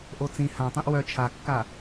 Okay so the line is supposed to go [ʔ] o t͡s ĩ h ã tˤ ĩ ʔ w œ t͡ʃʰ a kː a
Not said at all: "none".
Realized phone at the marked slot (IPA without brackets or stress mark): ʔ